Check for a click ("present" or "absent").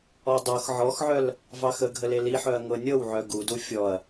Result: absent